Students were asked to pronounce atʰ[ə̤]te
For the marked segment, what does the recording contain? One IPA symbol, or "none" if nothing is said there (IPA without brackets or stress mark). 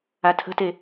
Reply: ə̤